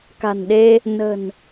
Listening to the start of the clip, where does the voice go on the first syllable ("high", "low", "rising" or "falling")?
low